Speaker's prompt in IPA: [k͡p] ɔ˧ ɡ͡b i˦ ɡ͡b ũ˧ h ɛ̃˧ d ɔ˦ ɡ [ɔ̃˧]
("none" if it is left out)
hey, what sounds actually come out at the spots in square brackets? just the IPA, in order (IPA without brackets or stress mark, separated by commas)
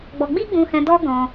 ɡ͡b, ɔ̃˧